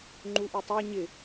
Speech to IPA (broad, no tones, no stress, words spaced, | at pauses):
ŋ͡ǃuʔutˤæ ɲɪ